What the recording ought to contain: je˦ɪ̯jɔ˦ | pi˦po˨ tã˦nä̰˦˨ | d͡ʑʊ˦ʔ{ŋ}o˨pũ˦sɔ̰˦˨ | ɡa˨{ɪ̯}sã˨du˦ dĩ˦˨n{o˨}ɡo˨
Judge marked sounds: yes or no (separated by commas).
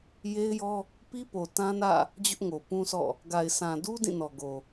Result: yes, yes, no